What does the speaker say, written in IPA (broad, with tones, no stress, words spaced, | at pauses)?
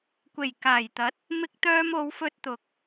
kʷe˨˩jkaː˨˩jt̪ɐ˨˥t̚ | mɪ˧k̚t̪œː˧mo˨˧wfɵ˧t̚ t̪ʊ˨k̚